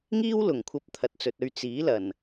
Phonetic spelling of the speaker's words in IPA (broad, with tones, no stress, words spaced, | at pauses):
ŋiː˥wlʊ˨˩ŋkʷʰɐ˧p̚ t̪ʰɐ˨t̚t͡sɵ˨t̚ɵ˧ɥ t͡siː˨˥lɐ˨˩n